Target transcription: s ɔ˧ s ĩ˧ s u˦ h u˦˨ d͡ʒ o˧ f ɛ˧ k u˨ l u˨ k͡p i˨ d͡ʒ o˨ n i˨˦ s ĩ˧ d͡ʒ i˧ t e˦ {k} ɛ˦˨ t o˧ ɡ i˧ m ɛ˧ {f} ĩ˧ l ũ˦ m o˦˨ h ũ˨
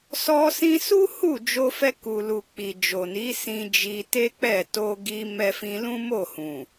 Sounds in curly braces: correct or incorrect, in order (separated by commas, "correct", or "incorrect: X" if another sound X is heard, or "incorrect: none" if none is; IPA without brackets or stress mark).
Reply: incorrect: k͡p, correct